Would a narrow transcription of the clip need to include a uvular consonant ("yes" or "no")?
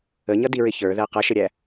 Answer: yes